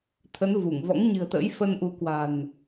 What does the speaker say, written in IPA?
t̪ʰə˨˦n vu˧˩ŋ vɔ̰˧˥ŋɲɨ̤˨˩ə̯t̪ə̰ː˧˥j fə˧nʔu˨˦ kwa̤˨˩n

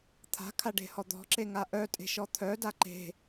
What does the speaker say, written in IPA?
t̪ʰa̤kʰa ɖe̤hɔd̪ɔ̤ǁe ŋaʔœtʼe̤ ʃɔt̪ʰœda ǃe̤

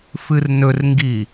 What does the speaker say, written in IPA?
fɨrnɵrŋɡi

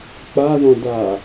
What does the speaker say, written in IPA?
k͡paðɔ̃ da

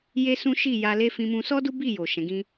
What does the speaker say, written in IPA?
je˦sũ˦ ʃi˦˨ja˧le˦ fĩ˧mũ˧sɔ˦ du˦bi˦˨jo˨ ʃɛ̃˨˦ɡĩ˦

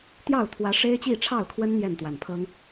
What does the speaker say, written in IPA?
t̪jɑ˥˩ʊ̯t̪ʰwä˧˥ ʂe˥ɪ̯t͡ɕi˥˧ʈ͡ʂʰɑ˥˩ʊ̯kʰwə˥n n̪jɛ˥˩nt̪wa˨˩npʰɤ˥ŋ

